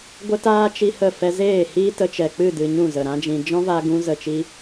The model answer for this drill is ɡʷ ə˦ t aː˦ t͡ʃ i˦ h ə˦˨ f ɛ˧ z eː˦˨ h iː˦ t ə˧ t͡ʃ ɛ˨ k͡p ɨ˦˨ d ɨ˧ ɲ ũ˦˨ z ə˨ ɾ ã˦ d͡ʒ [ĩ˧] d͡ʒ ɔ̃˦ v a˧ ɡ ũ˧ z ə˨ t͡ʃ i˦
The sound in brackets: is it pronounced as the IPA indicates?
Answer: yes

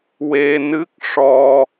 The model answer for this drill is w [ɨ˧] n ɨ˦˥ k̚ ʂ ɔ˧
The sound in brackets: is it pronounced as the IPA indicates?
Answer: no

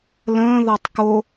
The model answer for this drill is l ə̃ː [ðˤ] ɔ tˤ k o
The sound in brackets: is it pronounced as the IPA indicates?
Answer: no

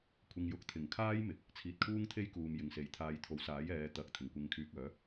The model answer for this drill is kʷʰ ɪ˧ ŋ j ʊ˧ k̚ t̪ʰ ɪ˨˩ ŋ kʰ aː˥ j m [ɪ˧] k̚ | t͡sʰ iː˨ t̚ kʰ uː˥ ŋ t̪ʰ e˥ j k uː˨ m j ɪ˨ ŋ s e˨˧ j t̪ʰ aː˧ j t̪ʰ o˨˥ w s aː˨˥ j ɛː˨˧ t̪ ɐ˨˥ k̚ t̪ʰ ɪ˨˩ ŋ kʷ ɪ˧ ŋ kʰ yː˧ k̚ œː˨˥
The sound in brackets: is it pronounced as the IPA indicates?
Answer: no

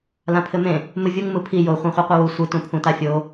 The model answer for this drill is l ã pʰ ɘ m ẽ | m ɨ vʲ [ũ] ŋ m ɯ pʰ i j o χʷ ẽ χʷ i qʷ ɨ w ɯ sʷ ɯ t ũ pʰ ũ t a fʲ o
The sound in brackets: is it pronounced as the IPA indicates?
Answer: no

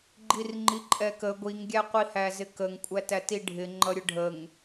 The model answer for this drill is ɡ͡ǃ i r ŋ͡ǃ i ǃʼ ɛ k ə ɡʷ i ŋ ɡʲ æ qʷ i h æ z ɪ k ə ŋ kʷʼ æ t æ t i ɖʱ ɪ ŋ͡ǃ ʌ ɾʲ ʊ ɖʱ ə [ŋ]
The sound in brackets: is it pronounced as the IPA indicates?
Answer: yes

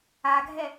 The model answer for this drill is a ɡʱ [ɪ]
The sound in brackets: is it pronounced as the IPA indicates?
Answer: no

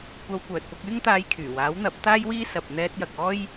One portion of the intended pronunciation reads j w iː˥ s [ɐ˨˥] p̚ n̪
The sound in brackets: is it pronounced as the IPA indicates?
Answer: no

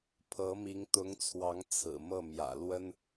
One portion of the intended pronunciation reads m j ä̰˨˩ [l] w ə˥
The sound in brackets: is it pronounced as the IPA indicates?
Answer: yes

